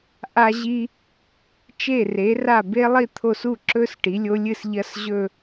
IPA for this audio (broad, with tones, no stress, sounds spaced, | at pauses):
ʔ a˨ ʑ i˨ | t͡ʃ e˥˩ r e˩˥ r a˥˩ b e˦˥ lˠ i˥˧ t̪ʰ o˥˩ s u˥˩ ǁ ɵ˦˥ s ʈ i˩˥ lʲ o˦˥ lʲ ɨ˥˩ s ʎ ɐ˦˥ s ʑ ɵ˥˧